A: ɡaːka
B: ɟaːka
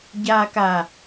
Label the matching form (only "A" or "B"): B